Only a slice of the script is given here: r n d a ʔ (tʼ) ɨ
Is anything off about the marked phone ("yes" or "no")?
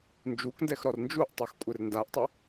yes